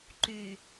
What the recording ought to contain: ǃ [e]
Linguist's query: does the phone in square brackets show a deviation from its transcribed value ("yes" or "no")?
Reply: yes